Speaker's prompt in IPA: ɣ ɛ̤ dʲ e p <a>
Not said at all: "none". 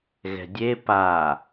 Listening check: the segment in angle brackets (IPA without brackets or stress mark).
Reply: a